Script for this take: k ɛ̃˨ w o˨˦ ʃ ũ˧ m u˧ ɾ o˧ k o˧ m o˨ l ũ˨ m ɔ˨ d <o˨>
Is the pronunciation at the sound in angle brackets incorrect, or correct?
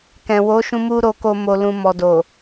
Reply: correct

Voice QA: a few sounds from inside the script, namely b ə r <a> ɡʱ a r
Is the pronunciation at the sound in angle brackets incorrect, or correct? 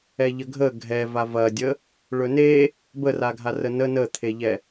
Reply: correct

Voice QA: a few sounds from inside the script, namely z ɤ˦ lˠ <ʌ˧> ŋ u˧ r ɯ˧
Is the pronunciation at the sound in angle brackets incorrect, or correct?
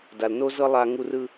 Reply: incorrect: a˧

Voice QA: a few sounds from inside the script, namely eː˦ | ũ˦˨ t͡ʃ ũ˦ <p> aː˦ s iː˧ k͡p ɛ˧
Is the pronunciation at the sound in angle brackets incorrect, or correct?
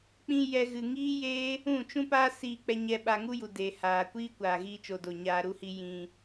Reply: correct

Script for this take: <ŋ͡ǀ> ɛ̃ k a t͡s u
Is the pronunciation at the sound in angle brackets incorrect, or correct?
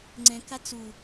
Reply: correct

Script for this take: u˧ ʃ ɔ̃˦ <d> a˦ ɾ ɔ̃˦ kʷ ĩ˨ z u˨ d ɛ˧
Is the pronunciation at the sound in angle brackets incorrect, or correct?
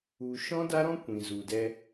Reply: correct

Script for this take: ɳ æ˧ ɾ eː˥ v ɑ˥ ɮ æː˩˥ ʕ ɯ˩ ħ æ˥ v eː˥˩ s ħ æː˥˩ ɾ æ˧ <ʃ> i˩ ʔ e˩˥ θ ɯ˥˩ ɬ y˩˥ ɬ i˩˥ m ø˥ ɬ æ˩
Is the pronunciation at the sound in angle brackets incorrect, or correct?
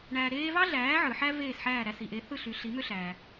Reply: incorrect: s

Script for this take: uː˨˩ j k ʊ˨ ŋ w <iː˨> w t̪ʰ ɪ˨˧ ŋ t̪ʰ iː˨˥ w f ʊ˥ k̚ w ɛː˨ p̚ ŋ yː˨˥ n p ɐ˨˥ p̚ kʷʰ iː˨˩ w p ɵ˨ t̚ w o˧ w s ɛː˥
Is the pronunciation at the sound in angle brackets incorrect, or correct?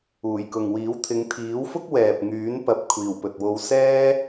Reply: incorrect: iː˨˥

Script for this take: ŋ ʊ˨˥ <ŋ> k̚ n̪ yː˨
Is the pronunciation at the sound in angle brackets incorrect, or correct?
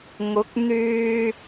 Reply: incorrect: none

